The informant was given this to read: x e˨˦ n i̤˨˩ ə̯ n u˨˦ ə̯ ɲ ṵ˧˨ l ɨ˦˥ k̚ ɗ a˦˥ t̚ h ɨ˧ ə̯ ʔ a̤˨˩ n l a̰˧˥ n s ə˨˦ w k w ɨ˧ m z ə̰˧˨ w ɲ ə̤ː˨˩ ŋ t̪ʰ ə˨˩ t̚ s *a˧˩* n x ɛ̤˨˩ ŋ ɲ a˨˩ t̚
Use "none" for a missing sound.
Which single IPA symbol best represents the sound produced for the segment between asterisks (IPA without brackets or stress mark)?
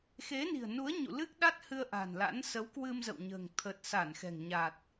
a˧˩